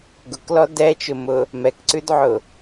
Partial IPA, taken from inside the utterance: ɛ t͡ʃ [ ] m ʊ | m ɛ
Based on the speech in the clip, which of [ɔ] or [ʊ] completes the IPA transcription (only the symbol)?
ʊ